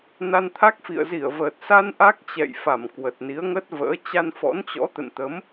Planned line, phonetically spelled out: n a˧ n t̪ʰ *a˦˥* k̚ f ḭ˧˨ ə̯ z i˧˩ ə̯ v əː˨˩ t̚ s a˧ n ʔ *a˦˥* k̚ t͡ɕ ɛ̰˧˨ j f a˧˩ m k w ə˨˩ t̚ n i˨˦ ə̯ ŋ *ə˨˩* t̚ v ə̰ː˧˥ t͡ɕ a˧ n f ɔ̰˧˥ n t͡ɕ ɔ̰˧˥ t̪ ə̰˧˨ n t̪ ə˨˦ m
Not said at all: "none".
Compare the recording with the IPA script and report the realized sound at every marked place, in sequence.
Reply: a˦˥, a˦˥, ə˦˥

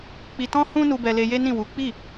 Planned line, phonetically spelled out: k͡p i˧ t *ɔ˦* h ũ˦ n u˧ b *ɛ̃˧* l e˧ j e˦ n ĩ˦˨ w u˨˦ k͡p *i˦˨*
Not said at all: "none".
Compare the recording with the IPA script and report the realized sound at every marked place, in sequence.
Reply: ɔ̃˦, ɛ˧, i˦˨

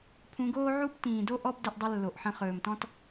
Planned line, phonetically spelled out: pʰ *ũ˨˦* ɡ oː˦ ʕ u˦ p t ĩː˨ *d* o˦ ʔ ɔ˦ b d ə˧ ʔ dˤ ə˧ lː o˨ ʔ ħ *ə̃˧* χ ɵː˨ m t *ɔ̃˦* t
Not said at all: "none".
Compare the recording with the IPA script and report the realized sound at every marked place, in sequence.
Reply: ũ˨˦, d, ə̃˧, ɔ̃˦

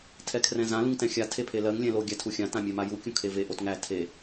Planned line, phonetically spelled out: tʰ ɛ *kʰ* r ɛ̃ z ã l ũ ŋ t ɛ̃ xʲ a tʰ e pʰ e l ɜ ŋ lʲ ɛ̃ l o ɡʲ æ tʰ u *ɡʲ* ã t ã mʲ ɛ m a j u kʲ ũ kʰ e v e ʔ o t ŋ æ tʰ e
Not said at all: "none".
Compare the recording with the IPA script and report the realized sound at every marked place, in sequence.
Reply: kʰ, xʲ

